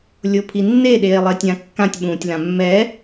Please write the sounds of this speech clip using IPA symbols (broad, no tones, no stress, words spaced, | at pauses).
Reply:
lʲopʰinːe ɗeːlˠetʲãkːãtʲ ɓũːtʲlãmːɛ